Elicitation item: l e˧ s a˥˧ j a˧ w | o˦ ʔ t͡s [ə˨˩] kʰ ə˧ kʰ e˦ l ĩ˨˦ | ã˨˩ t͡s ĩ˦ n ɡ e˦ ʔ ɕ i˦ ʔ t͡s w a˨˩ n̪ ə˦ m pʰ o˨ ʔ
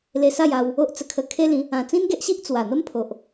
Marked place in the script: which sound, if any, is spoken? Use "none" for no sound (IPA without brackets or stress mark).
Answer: ə˧